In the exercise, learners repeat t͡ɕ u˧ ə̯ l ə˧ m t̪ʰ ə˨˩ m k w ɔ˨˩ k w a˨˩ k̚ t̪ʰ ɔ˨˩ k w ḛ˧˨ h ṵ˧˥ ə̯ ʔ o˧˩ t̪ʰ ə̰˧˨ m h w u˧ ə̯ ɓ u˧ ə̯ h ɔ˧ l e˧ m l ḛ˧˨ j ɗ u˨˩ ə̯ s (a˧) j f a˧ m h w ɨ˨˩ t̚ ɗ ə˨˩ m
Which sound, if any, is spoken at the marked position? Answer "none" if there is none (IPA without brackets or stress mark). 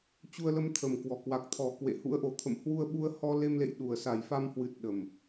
a˨˩